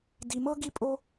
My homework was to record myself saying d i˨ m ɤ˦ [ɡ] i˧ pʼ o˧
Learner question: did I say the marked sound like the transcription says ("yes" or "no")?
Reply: yes